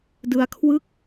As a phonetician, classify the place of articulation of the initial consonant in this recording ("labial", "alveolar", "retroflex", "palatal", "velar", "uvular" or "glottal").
alveolar